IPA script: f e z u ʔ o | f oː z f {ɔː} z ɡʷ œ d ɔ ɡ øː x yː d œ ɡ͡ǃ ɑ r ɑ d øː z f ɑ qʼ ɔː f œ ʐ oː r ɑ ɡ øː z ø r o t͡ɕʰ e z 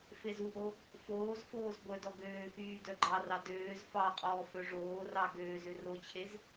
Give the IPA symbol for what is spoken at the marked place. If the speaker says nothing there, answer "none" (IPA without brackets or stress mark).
oː